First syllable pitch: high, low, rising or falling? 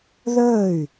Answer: falling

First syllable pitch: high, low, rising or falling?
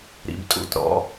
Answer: low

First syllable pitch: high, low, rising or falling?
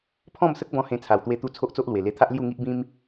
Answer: falling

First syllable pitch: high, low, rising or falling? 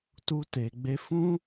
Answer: high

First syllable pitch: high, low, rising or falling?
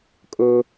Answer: high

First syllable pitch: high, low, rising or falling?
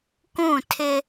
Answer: falling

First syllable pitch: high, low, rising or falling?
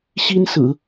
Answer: high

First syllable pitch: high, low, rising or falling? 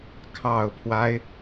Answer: low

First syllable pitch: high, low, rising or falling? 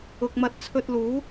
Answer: low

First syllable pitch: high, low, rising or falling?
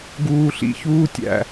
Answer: low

